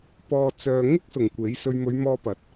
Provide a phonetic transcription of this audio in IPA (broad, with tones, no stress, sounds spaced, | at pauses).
p ɔː˨ t͡s œː˨ ŋ ɪ˥ k̚ s ʊ˨˩ ŋ kʷ e˨˥ j s ɵ˧ ɥ m ɵ˨˧ ɥ m ɔː˧ p ɐ˨˥ t̚